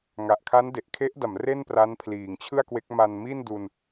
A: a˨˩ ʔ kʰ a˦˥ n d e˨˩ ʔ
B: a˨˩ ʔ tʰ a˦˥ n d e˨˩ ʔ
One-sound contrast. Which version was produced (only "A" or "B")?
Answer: A